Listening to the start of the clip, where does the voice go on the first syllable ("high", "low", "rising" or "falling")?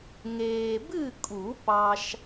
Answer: low